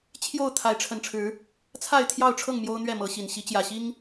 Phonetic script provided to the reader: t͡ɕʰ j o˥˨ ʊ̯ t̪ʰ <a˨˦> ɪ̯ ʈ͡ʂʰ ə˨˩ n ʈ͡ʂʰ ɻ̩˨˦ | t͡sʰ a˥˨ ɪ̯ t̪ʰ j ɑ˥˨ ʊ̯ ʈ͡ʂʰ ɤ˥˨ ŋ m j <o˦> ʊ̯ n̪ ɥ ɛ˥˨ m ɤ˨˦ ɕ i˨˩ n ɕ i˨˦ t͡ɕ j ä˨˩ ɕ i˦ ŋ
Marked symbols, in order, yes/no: yes, yes

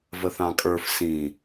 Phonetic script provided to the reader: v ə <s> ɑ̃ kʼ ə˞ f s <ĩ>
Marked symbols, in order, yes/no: no, yes

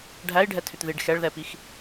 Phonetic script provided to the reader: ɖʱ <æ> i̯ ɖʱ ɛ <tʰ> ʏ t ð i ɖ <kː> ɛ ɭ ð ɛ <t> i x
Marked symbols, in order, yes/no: yes, yes, no, no

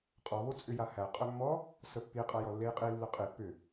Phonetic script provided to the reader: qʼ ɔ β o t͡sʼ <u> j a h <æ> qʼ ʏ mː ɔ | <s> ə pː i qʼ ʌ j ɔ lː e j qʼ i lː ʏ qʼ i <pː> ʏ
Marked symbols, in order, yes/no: no, yes, yes, yes

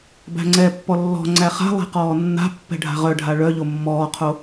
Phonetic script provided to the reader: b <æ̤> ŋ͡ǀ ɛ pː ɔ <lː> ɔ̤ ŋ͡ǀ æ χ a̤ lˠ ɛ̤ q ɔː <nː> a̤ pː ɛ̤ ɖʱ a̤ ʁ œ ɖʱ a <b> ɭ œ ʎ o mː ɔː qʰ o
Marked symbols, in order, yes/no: yes, yes, yes, no

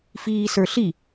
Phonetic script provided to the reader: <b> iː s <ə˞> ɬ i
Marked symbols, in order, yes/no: no, yes

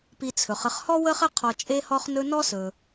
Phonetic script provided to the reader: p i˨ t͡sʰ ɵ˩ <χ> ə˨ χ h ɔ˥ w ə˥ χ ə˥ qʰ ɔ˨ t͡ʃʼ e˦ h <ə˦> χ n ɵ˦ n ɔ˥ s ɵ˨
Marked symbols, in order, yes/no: yes, no

